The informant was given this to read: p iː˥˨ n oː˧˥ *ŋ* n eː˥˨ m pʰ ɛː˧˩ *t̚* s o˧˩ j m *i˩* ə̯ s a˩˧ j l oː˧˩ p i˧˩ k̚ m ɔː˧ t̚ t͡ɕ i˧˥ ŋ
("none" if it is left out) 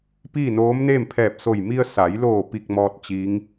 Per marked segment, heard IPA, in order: m, p̚, i˧

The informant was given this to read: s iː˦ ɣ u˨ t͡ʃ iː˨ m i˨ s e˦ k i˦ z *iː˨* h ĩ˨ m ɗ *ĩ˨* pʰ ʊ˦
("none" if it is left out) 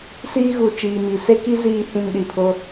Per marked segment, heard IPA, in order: iː˨, i˨

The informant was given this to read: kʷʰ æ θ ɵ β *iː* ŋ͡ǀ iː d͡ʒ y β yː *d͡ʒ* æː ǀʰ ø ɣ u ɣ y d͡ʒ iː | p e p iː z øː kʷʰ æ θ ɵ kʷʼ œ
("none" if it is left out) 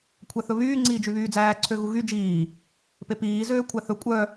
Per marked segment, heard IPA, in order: yː, d͡z

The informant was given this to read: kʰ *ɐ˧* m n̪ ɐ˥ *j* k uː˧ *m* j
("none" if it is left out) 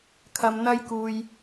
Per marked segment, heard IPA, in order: ɐ˧, j, none

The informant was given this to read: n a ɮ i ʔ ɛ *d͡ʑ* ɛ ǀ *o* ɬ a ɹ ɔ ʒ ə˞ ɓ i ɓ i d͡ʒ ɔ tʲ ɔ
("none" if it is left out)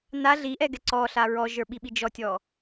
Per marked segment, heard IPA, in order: ɡ, ɔ

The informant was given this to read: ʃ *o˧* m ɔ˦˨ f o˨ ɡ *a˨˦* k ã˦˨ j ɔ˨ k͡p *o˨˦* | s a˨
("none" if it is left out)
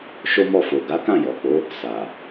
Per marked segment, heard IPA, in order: o˦, a˨˦, o˨˦

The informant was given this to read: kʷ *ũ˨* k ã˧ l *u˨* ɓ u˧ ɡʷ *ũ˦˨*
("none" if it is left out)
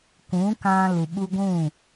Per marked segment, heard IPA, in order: ũ˨˦, u˨, ũ˦˨

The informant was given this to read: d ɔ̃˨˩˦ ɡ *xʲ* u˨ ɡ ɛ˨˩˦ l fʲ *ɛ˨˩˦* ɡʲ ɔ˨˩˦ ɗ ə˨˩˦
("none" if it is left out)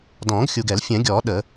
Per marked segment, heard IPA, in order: xʲ, ɛ̃˨˩˦

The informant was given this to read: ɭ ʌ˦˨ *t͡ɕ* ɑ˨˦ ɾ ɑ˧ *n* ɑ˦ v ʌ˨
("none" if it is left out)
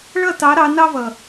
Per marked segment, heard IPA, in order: t, n

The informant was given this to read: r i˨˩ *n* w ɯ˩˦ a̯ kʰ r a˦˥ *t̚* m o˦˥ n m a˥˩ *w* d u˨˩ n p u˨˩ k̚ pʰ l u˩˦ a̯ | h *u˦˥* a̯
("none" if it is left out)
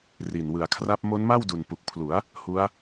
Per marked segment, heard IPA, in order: n, p̚, w, u˦˥

